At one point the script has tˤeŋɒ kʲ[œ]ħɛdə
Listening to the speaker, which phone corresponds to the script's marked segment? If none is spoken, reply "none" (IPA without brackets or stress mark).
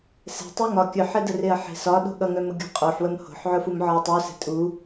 œ